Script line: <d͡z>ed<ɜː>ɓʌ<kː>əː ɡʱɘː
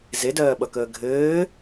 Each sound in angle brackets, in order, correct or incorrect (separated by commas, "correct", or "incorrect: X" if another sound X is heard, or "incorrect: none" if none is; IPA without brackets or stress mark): incorrect: z, correct, incorrect: k